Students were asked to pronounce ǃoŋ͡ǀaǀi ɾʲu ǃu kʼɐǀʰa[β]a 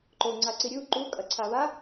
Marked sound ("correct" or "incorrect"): correct